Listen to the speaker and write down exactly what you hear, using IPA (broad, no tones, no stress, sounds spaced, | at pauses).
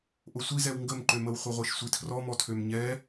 ʔ o sʷ i z ɛ w ŋ ɡ ə m ǃ ø m ə w χʷ ɛ ʁʷ e ʃ sʷ i tʰ r ɔ m ɔ tʰ ø m ɲ ɛ